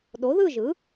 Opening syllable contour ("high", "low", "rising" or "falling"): rising